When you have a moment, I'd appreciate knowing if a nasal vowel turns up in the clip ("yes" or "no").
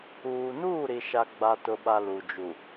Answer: no